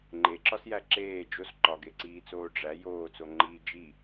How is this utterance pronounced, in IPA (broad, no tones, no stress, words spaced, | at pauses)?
ŋ͡ǃeǁɒsjæ ǁeː d͡ʒos ǃɒɡeǀiːt͡soː ɖ͡ʐæ joːt͡soŋ͡ǃiː d͡ʒi